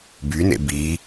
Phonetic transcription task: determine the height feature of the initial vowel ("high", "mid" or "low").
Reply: high